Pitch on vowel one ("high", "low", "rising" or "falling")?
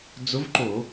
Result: rising